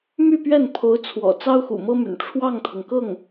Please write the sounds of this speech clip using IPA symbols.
m y˥˧ p ɥ ɛ˥˩ n pʰ o˧˥ ʊ̯ t͡sʰ w ɔ̰˨˩ t͡s ɑ˥ ʊ̯ x ṵ˨˩ m ɤ˥ m y̰˨˩ n ʈ͡ʂʰ w ɑ˥˩ ŋ t̪ʰ ɤ˩ ŋ k ɤ˥˩ ŋ

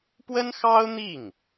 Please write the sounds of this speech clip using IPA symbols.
p w ə˥ n x ɑ˥ ʊ̯ n̪ i˥˩ ŋ

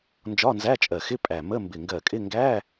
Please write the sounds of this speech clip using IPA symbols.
n d͡ʒ ɒ˧˥˧ n z æ˧˥˧ t͡ʃʼ ɜ˧˩ x ɪ˧˥˧ pʼ æ˧˩ m ə˧˥˧ m b ɪ˧˩ ŋ ɡ ɜ˧˩ kʼ ɪ˧˥˧ ŋ ɡ æ˧˥˧

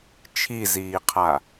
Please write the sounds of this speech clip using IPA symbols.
t͡ʃʰ i z iː qʰ a

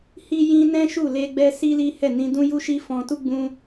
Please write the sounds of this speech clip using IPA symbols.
h i˦ j ĩ˦ n ɛ̃˦ ʃ u˦˨ l e˧ ɡ͡b ɛ˦ s i˦ l i˦ h ɛ˦˨ n ĩ˧ d ũ˦ j u˦ ʃ i˦ f ɔ̃˧ t u˦ ɡ͡b ũ˦

